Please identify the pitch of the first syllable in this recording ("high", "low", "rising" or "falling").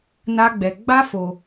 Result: high